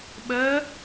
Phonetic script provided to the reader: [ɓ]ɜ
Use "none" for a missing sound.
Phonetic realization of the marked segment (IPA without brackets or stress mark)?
ɓ